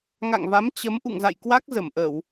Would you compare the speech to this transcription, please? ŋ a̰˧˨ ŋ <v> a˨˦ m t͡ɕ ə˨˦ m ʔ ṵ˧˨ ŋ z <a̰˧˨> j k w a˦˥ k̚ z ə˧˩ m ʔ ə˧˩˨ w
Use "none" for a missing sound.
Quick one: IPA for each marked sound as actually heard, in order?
v, a̰˧˨

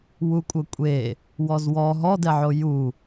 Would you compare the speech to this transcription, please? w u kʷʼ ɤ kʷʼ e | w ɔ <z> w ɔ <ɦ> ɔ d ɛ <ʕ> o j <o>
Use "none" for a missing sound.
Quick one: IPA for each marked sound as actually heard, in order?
z, ɦ, ʕ, u

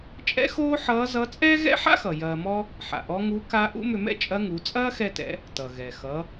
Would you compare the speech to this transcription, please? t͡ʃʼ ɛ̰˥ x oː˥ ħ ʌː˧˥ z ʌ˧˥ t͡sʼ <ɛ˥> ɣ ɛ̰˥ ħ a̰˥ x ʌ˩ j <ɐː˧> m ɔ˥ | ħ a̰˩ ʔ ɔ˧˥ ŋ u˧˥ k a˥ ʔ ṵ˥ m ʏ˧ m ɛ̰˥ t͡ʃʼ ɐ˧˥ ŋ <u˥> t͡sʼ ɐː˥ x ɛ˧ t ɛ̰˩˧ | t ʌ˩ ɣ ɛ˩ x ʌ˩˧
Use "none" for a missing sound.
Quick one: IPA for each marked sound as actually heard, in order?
ɛː˥, ɐː˧, u˩˧

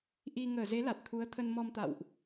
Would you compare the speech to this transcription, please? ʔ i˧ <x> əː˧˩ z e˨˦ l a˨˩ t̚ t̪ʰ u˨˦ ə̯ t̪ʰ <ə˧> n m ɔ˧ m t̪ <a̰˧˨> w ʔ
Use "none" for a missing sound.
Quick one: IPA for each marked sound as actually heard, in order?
ŋ, ə˧, a̰˧˨

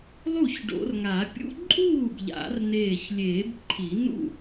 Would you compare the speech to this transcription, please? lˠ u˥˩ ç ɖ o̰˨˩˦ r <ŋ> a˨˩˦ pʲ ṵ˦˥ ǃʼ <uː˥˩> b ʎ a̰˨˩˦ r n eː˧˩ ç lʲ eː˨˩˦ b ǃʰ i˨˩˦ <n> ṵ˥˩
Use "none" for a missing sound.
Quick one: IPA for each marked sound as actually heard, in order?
ŋ, uː˥˩, n

